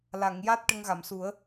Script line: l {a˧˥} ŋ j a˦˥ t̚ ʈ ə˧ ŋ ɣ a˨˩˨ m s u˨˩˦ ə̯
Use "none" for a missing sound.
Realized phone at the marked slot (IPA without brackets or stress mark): a˨˩˨